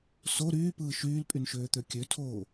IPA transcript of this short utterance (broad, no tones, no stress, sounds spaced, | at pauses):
s o ɾ yː p ɯː ʃ yː l pʼ y n ʃ øː t̪ ø kʲ ø tʰ oː